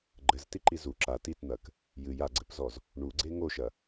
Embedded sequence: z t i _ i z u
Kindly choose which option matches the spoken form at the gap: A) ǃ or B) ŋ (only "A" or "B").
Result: A